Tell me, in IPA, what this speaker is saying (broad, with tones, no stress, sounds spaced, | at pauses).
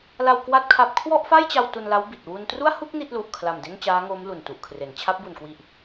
l a˧ w k w a˥˩ t̚ kʰ a˦˥ p̚ kʰ w ɔ˥˩ ʔ f a˥˩ j t͡ɕ a˧ w t u˧ n l a˦˥ w b i˨˩ t̚ w u˧ n t r u˥˩ a̯ h u˥˩ k̚ n i˥˩ t̚ l u˨˩ ʔ kʰ l a˨˩ m d e˥˩ n t͡ɕ aː˦˥ ŋ oː˦˥ m l u˨˩ n t u˨˩ ʔ kʰ r e˩˦ n t͡ɕʰ a˦˥ p̚ b u˨˩ n k w i˨˩ ʔ